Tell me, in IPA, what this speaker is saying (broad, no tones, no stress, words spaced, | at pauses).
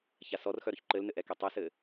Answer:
çasɔrxœ ɾʊçǃɘlnɘ ʔɛketˤɘsɘ